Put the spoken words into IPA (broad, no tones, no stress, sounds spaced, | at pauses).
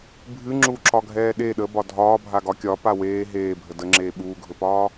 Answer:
bʱ ɨ ŋ͡ǁ u ǁ ɒ ɡʱ ɛː ɗ e ɗ ə b ɒ dʱ ɒː bʱ a ɡ ɒ kʲ ɒ p a w eː ɦ eː bʱ ə d ə ŋ͡ǁ eː ɓ uː ɡʱ ɵ p ɒː